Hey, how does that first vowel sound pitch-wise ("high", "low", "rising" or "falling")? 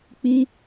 high